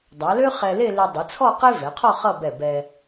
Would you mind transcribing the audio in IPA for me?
dˤa˩˧lø˥ χɛ˧le˥˧ le˧dˤe˩˧t͡sʰɔ˥˧ qe˥vɛ˩˧qʰɔ˥˧ χʌ˥˧bɛ˧˩ bɛ˧

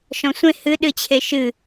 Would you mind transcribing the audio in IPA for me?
ʃɔ̃sʷẽ hɨɗɨt͡ɕʰe ʃɨ

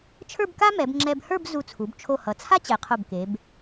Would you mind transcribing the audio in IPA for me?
t͡ʃʰə˞˥˧bka˥mɛ˩˧b ŋ͡ǁɛ˧bhə˞˥˧b zu˧˩t͡sʰu˩˧b t͡ʃʰo˧˩hʌ˩˧t͡sʰa˥ t͡ɕɛ˩˧qʰo˧˩bke˩˧b

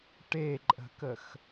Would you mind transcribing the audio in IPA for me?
ʈeǃʼə̤kəx

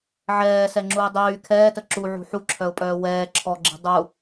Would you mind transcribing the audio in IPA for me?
ʕɛːsɛŋ͡ǁuɪ̯ dˤyː kʰɛːtə ǁuʕṳ ħuǁʰœʊ̯pʼœː wɛː ǁʰɔɡ͡ǁi̤ dˤu

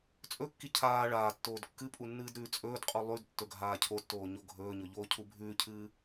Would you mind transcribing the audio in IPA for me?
t͡sʼɵkːi cʰaː ɭaːtːoːd kːɨpʼu nːɨːdɾʉːt͡sʼɵːdqʼu lˠʉd tːɵɡʱaːcʰotːoː ɲoɡʱɵːɲɵ ʎoːcʰubʱʉːcʰɨː

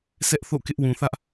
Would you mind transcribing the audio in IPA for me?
sɛ˦ʔθo̰˦˨kɪ˦ʔ wũ˨θä˦ʔ

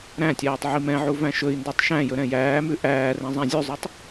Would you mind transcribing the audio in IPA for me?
ɾæ̃tʲæːtˤ ʕimɛ̃ʕu væ̃ʃɵi̯ndøtˤ ʃæ̃jɵ ɾɛ̃jæːmʉ ʔæːrɛ̃ zˤæ̃zʲʉzˤøtˤ

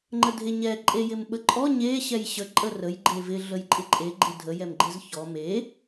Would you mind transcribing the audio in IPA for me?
ŋ͡ǃədʱeɲɛ ǃʼejɪmɓəǃʼɔ ɲe ɕɛjɕə ǃʼərəj ɡ͡ǃevɪ ɮəjǃʼɪǃʼe ɡ͡ǃɪdʱə jɛmɡ͡ǃɪzçɔ me

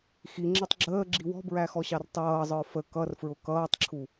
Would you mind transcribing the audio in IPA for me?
xiŋ͡ǁɛtˤ ɡ͡ǁəːɡ͡ǁi wɔ̤bɹæxɔɕɑr tˤʌːzˤə˞ fə kʌrfɹʊ kʌːtˤǁʰu

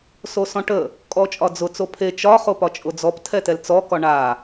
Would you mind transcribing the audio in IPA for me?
sosɔ̃ʈə | kʼɔt͡ʃʼɒd͡zʊ t͡sopʰe t͡ʃɒ χopɒt͡ʃʼʊd͡zɔp tʰɛtɛlt͡sɔ kɒɳa

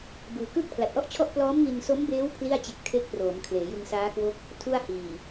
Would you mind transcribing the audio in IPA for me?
bɯː˧ kɯː˥˩k̚pʰla˨˩t̚ʔɔ˥˩ʔt͡ɕʰɔ˥˩ʔ plɔː˦˥mŋi˧nso˦˥mbeː˦˥w pʰli˥˩a̯t͡ɕe˦˥k̚ tʰe˦˥k̚ proː˩˦mkʰleː˩˦ jɯ˧ŋsaː˦˥kwo˦˥k̚ | tʰu˥˩a̯hiː˨˩

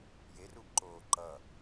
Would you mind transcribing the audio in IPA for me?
jerubǃoː ǃʌ

